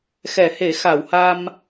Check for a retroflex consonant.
absent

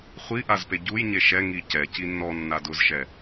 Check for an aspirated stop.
absent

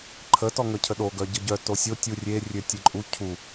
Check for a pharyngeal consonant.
absent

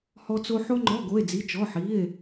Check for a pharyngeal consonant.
present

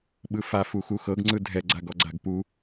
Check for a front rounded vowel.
absent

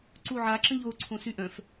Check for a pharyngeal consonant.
present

